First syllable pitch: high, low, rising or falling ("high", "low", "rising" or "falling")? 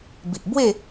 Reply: low